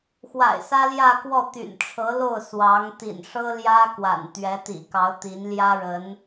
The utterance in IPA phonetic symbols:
x w a̰˨˩ ɪ̯ s ä˥ l j ä˥˧ k w ɔ˥˩ t̪ y̰˨˩ n ʈ͡ʂʰ ɤ˧˥ l o˥˩ ʊ̯ s w ɑ˧˥ ŋ t̪ ḭ˨˩ n ʂ ɤ˥ l j ä˥ k w a̰˨˩ n t̪ ɥ ɛ˧˥ t̪ ḭ˨˩ k ɑ˧˥ ʊ̯ t̪ i˧˥ n l j ä˥ ɻ ə˧˥ n

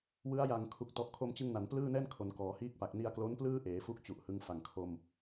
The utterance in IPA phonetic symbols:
w ɯ˦˥ a̯ j a˨˩ ŋ kʰ u˨˩ k̚ t ɔ˨˩ ʔ kʰ o˧ m t͡ɕ ɯ˧ ŋ n a˩˦ n p l ɯː˥˩ n ɛː˥˩ n kʰ o˩˦ n k ɔː˩˦ h iː˥˩ k̚ p a˨˩ k̚ n i˧ a̯ k l o˦˥ n p l ɯː˥˩ ʔ eː˩˦ f u˦˥ k̚ t͡ɕ u˨˩ ʔ h ɯ˦˥ ŋ f a˨˩ ŋ kʰ o˧ m

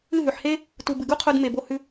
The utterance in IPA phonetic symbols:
ɨ˦˨ ɦ ʉ˨ ħ h e˦ | t u˨ b ɨ˨ ɡ u˦ qʰ o˧ d m e˨ b o˧ h ʉ˧

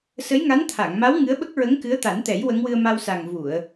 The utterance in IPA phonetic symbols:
s ə˧˥ j ŋ a˧˥ n t̪ʰ a˨˩˨ ŋ m a˧˥ w ŋ ɨ˧˥ ə̯ ɓ ə˦˥ k̚ ɹ ə˧˥ ŋ k ɨ˧˥ ə̯ t̪ a˨˩˦ n t̪ ɛ˨˩˦ j w ə˧˥ ŋ w ɨ˧ ə̯ m a˧ w s a˨˩ ŋ v u˨˩˨ ə̯

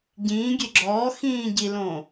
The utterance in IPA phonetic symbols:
ɟ ĩː ɡʲ e ɡ͡ǁ ɔː x ĩː ɟ i l õː

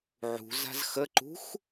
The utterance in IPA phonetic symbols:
ʕ ṳ z a̤ z x ə ǃ ṳ x

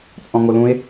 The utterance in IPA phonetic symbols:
t͡sʼ ɔ̃ ŋ o l ũ e̯

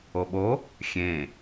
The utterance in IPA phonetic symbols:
o ɓ o | xʲ ẽ

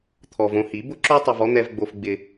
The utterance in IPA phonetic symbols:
t̪ʰ ɔ˨ v õ˧ h i˨˦ b ʊ˦ ǁ o˦ tˤ o˧ v ɔ˦ n̪ ɛ˧ v ɡ͡b o˧ f ɡ͡b ɪ˧

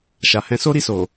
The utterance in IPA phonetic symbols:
ʃ a˨ h ɛ̃˧ s o˦ ɾ i˦˨ s o˨

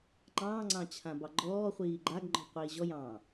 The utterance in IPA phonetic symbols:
ŋ͡ǃ ɑ̃ː ŋ͡ǀ ɑ̃ t͡ɕʰ ã b ɑ ɡ͡ǃ ɔː χʷ iː ɡ͡ǃ a ɡ ŋ͡ǃ ɔ̤ qʷ iː ʑ ɔ j ɑ̃ː

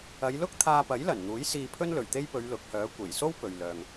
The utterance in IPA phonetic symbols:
ɐ˨˧ j l ʊ˥ k̚ t̪ʰ aː˧ p ɐ˨˥ j l ɐ˨˩ n n̪ uː˨˥ j s iː˧ pʰ ɵ˥ n l ɵ˨˩ ɥ t̪ e˥ j p ɵ˨˧ ɥ l ʊ˨˥ k̚ h œː˨˥ kʷ e˨˩ j s o˥ w p ɵ˨ ɥ l œː˨ ŋ

